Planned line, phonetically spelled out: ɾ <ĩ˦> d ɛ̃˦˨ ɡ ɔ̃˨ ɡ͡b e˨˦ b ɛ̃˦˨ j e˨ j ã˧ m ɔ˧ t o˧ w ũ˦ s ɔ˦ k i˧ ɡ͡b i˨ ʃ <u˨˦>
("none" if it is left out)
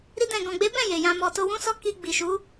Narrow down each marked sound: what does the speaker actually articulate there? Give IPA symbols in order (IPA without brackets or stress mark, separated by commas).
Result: i˦, u˨˦